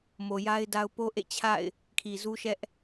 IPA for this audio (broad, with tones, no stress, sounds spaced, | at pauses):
m o˨ j a˦ ɪ̯ d a˦ ʊ̯ p o˦ ʔ ḛ˦˨ t͡ɕʰ a̰˦˨ ɪ̯ | kʰ i˨ z u˦ ʃ ɛ˦ ʔ